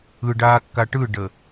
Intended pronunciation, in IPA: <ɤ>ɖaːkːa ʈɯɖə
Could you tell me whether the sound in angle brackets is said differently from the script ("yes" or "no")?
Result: yes